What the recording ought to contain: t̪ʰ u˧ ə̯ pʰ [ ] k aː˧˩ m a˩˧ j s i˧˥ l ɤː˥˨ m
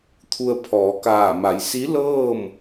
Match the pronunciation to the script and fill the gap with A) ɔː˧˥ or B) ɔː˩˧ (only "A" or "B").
B